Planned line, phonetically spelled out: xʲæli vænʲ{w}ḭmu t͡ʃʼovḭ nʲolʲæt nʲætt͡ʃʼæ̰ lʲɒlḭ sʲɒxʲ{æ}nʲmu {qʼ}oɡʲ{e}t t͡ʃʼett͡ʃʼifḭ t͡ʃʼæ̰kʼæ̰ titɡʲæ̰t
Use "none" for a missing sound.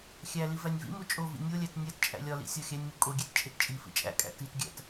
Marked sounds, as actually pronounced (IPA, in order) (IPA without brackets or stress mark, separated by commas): v, æ, kʼ, e